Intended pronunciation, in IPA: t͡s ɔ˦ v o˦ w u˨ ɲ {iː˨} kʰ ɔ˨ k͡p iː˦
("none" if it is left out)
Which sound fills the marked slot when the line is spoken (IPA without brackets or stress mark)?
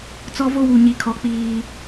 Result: i˨